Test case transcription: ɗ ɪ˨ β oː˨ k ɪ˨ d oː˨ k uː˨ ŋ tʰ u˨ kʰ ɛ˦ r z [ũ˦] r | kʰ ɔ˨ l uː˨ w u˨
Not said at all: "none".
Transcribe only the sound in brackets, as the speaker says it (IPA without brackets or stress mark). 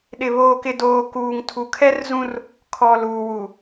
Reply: ũ˦